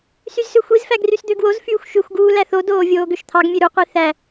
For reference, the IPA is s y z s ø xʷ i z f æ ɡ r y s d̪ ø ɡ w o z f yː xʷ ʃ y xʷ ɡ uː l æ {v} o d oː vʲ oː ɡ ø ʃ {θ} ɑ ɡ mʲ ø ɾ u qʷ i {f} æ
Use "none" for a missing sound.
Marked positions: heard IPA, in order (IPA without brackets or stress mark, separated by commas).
θ, t̪ʰ, θ